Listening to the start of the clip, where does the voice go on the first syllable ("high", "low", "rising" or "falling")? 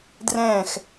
falling